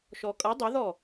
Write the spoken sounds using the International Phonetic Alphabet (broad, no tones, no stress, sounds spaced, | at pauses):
ʃ ɔ kʼ ʌ dˤ ʏ ð ɔ